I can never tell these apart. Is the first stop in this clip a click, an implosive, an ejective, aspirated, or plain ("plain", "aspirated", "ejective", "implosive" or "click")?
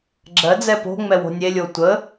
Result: click